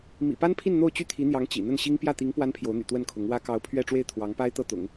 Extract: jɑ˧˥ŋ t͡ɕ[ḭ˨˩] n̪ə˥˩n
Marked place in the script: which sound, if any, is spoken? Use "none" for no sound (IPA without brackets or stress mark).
ḭ˨˩